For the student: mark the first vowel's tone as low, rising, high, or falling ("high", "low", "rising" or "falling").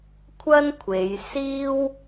high